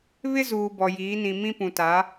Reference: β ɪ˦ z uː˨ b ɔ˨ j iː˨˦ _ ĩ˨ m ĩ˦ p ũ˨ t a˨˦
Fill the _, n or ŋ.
n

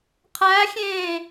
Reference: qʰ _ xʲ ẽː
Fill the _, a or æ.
æ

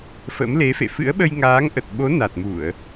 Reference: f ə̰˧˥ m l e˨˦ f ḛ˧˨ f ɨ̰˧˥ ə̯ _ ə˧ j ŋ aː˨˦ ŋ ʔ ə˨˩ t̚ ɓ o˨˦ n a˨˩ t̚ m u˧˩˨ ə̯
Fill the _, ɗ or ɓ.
ɓ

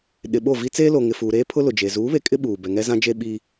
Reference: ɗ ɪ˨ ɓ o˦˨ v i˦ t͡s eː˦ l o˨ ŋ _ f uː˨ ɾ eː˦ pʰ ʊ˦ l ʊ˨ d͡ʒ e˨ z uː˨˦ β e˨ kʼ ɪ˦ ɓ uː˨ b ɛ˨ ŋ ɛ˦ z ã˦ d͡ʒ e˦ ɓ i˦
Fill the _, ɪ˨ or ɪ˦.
ɪ˨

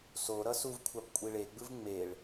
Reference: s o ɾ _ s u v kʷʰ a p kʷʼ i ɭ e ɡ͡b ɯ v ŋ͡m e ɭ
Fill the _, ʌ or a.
ʌ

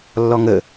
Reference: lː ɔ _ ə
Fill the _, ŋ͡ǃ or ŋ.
ŋ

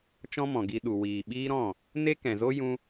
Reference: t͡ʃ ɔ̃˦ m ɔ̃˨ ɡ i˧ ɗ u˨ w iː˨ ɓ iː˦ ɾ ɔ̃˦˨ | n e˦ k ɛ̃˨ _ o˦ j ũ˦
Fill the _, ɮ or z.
z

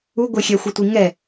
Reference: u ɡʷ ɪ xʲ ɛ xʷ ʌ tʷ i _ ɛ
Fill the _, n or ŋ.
ŋ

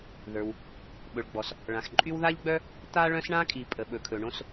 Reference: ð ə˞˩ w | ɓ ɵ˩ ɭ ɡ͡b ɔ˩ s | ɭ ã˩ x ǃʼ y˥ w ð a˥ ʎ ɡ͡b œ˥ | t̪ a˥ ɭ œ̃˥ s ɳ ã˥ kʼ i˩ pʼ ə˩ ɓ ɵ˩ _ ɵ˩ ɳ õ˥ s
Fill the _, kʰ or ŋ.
kʰ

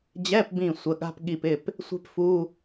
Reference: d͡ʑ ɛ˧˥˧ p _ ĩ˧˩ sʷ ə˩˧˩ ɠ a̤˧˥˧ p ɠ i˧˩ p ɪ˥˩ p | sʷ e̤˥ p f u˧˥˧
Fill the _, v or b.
b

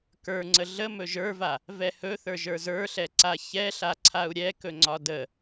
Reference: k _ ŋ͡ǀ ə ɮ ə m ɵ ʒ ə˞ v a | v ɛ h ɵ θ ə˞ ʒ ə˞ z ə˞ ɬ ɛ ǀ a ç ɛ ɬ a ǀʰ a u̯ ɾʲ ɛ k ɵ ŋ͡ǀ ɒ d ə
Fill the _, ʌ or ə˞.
ə˞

